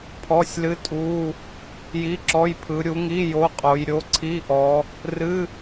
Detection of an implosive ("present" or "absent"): absent